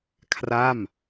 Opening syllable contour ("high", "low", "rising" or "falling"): falling